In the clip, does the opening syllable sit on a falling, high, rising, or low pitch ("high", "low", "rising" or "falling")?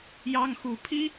high